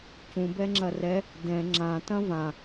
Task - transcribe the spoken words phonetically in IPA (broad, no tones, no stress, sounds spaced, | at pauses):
c ũ b ɛ ŋ͡ǁ ɐ r ɛ | d ɛ̃ ŋ͡ǁ ã t ɐ̃ v ã